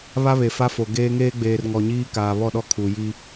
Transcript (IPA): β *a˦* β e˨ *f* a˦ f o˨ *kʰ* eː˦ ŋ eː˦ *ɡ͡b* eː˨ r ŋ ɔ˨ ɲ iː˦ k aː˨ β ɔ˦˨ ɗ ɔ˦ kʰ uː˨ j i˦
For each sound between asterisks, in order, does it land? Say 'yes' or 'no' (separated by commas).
yes, yes, no, yes